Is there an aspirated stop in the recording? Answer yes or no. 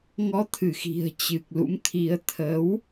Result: yes